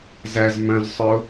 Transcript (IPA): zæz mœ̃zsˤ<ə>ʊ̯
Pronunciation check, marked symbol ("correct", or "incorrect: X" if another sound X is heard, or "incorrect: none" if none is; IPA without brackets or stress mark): incorrect: œ